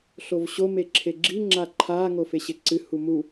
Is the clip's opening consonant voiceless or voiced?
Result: voiceless